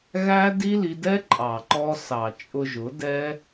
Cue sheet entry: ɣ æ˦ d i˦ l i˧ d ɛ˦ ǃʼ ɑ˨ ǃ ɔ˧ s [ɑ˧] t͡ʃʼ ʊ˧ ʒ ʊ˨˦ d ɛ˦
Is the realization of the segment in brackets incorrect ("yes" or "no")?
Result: yes